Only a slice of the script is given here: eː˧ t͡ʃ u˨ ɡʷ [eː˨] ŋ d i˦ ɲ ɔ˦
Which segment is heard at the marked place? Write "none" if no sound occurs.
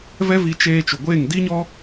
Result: eː˦˨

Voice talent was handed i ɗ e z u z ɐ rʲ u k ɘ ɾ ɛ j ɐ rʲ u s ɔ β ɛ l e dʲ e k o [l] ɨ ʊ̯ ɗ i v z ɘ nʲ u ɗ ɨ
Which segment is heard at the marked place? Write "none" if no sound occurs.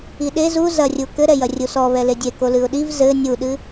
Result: l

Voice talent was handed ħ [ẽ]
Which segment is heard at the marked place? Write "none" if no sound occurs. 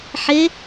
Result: e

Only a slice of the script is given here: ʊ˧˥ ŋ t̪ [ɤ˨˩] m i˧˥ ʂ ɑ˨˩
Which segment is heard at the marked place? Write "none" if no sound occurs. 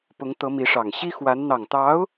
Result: ɤ˧˥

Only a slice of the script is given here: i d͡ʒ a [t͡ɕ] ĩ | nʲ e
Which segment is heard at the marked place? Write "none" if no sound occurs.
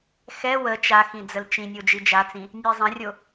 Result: t͡s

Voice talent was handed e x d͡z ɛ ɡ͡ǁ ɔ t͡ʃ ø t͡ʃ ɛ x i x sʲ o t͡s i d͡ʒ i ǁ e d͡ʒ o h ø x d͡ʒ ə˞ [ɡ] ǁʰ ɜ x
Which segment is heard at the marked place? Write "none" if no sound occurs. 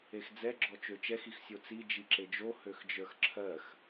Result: x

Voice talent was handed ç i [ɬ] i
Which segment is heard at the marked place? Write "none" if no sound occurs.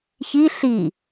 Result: ɬ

